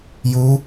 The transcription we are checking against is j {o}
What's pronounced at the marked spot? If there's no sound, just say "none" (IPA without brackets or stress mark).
u